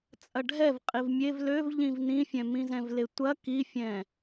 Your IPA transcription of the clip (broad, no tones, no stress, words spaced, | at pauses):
t͡sʼɐɖʱɛv qʼivmʲev løv ʎĩvnĩfʲɛ̃ mĩzɛ̃vletʷɐ kifʲɛ̃